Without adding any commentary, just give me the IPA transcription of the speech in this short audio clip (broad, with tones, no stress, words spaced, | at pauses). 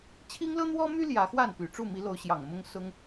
t͡ɕʰi˥ŋlɤ˥n̪wɔ˥my˥ ljä˧˥xwa˥˩n py˨˩ʈ͡ʂu˥˩mi˧˥ lo˧˥ʊ̯ɕjɑ˨˩ŋ mʊ˥ŋsʊ˥ŋ